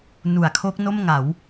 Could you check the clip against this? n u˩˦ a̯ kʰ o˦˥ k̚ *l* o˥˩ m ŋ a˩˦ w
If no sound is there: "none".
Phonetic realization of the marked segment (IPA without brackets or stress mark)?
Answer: n